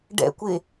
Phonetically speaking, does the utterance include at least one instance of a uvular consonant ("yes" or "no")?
no